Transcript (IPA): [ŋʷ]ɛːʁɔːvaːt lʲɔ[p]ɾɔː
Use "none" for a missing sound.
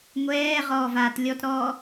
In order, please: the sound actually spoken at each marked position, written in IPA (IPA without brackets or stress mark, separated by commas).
ŋʷ, t